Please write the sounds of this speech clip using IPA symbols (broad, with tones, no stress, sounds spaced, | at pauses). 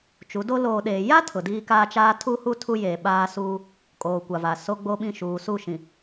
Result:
t͡ʃ u˨˦ d o˦ l oː˨ ɗ eː˨ j a˦ tʰ ʊ˨ d iː˦ k aː˦ t͡ʃ aː˦ tʰ u˦ h u˦ tʰ u˦ j eː˨ ɓ aː˦ s uː˦ | kʼ oː˨ kʷ a˨ v a˨ s o˦ ɡ͡b oː˦ ɓ ĩ˦˨ ʃ uː˨ s u˦˨ ʃ ĩ˨